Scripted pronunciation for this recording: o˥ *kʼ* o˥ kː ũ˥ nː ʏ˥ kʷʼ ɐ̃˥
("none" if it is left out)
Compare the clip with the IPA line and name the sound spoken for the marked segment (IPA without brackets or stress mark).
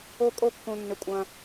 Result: kʼ